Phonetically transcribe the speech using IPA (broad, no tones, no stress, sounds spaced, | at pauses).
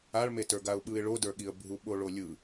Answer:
a ɭ m e t ə˞ ɡ a ʊ̯ ɓ ɯ ɪ̯ ɭ o d ə˞ ɠ i ə̯ bʱ u ɓ o ɭ o lʲ ɯ